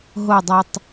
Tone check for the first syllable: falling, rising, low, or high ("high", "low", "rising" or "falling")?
falling